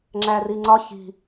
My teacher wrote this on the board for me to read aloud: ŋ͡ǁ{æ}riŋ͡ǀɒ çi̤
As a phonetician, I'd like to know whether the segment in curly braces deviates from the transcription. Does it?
no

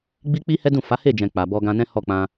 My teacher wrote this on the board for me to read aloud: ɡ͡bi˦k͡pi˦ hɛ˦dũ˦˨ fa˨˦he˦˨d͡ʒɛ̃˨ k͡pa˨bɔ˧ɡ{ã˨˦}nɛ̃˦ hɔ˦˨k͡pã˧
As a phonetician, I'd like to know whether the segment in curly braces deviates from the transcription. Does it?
yes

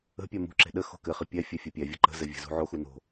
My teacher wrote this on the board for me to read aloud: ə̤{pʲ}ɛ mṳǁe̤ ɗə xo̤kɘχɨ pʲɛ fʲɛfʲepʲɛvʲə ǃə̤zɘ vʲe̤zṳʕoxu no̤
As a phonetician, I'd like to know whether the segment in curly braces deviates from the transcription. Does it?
no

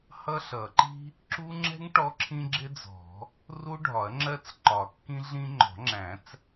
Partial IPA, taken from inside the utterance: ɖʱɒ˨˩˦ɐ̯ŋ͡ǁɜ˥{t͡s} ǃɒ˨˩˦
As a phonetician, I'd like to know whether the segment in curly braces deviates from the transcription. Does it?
no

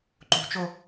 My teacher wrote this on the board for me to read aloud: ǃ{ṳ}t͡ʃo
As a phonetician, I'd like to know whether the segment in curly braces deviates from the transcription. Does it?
no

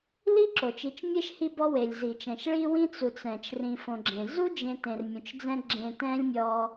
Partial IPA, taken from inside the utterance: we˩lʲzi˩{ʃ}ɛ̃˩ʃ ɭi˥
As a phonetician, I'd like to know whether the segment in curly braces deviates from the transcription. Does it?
yes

